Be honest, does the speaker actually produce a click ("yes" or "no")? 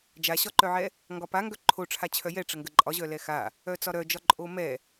yes